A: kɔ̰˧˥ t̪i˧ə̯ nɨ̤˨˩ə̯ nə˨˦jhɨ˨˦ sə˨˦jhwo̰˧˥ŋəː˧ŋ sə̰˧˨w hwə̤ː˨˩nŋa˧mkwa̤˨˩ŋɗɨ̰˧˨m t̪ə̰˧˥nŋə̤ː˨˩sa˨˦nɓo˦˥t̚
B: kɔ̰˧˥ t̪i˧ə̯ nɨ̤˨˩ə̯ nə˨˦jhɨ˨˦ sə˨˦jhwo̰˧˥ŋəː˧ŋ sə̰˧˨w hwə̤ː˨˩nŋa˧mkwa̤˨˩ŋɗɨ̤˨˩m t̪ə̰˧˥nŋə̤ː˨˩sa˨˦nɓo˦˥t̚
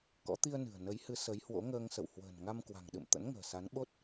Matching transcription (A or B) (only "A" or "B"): A